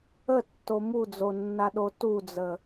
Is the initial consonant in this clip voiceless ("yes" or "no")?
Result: yes